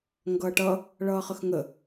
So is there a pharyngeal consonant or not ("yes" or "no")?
no